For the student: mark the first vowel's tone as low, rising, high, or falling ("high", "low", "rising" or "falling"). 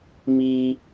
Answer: low